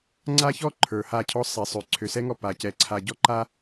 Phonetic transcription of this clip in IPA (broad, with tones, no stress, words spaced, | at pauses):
ŋ͡ǀa˦çɔ˦ ǃʰə˞˨ha˦˨cʰɔ˦ sˤɛ˨sˤø˨ ǀʰø˨sɛ˦ŋɔ˦˨ pa˨cɛ˨ ǀʰa˨ɟɔ˦ǃa˦